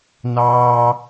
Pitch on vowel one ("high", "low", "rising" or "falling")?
high